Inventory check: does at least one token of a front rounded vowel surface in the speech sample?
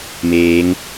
no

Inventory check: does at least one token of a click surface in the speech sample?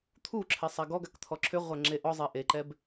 yes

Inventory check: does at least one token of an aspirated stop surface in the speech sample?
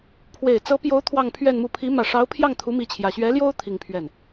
yes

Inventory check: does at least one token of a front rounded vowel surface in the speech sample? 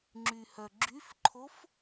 yes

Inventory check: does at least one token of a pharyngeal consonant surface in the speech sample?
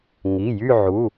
yes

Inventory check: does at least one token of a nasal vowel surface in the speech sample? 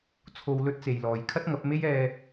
no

